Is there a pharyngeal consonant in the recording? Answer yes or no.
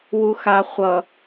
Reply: no